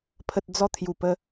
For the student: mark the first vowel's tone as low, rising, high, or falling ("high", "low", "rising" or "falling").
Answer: low